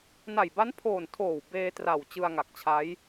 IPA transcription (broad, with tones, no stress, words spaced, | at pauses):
na˨˩jba˦˥npʰoː˨˩n tʰoː˨˩w beː˧tra˨˩w t͡ɕɯ˧a̯ŋa˨˩k̚t͡ɕʰa˦˥j